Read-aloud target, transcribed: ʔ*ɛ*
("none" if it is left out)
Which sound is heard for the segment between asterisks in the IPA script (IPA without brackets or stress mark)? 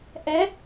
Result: ɛ